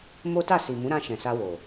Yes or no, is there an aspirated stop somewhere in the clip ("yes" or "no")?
no